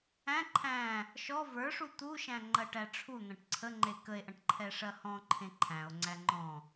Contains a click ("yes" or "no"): yes